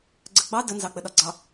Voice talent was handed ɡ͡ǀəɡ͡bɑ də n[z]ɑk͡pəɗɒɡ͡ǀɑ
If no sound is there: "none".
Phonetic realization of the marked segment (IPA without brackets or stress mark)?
z